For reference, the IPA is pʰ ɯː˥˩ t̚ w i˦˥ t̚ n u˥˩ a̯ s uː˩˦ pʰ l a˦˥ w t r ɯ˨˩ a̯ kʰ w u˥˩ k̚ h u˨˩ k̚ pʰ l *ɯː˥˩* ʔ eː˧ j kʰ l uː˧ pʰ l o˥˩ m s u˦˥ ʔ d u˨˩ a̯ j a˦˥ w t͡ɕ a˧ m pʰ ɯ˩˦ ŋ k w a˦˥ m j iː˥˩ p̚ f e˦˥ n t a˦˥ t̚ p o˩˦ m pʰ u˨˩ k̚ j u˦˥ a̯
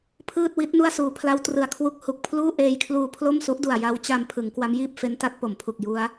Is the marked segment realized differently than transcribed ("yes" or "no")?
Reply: yes